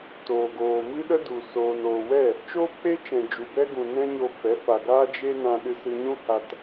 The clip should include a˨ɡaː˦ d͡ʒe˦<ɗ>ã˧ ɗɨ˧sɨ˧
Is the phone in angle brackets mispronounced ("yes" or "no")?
yes